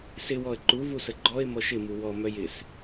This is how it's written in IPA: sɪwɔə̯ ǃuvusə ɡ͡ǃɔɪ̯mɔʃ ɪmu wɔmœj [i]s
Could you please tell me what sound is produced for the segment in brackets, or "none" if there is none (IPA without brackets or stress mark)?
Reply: ɪ